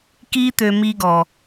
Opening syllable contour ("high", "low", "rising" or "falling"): high